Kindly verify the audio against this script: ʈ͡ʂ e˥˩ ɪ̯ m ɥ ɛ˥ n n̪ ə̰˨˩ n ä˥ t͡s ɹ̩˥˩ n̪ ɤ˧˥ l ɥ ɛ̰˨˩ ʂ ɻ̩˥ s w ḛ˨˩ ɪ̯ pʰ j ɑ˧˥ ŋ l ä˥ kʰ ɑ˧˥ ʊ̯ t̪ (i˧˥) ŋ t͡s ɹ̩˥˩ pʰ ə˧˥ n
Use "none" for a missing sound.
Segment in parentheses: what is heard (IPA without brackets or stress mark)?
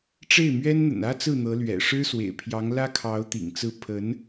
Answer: ḭ˨˩